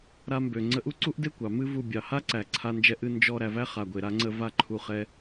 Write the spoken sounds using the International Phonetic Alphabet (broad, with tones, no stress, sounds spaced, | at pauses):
ɾ a˧ m b ø˨ ŋ͡ǀ ə˧ ʔ u˦ ǀ u˦ ʔ d e˦ kʷ ɑ˨ m ɨ˦ v u˧ bʲ ɑ˨ h a˦ ǀ æ˨ ǀʰ a˧ n d͡ʒ ɛ˧ ʔ ɨ˧ n d͡ʒ ɔ˧ ɾ æ˨ v æ˧ χ a˨ ɡʷ e˨ ɾ a˧ ŋ͡ǀ ə˧ v a˧ ǃʰ u˨ χ ɛ˧